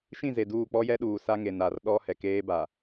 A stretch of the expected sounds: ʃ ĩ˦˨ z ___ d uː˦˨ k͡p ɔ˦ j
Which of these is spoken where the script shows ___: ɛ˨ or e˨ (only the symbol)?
e˨